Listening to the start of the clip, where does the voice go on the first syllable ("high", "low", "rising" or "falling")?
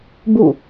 falling